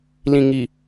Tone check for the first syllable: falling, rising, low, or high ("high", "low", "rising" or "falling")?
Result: low